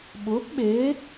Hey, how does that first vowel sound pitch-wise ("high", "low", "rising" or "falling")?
rising